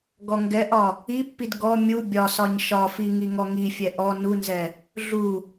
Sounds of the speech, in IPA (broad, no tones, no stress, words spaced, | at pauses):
ɡɔŋɡɛʔɒ | ipːid ɡɔ mʲu bʲɒsɒɲ ʃɒfi ŋiŋɔŋifʲɛ ʔɔ nunzɛ | ɮu